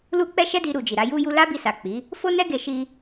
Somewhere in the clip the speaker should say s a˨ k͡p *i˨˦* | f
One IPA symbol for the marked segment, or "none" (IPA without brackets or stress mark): i˨˦